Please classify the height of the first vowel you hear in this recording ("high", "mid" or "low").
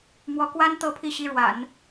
mid